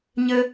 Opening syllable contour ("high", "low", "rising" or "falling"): high